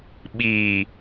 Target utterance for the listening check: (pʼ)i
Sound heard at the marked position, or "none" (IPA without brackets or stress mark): ɓ